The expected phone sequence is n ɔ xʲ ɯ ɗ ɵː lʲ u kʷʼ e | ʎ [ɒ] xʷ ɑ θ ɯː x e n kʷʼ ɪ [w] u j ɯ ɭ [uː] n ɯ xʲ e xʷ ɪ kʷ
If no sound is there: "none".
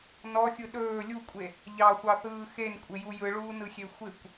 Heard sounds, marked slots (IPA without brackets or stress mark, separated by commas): ɑ, j, uː